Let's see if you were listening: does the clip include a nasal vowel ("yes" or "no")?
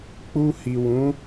yes